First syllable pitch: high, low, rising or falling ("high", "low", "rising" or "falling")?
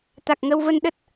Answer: low